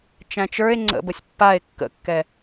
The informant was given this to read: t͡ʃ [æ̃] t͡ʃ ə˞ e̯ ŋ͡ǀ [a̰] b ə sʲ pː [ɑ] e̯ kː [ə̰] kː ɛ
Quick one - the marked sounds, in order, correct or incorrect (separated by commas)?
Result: correct, incorrect, incorrect, correct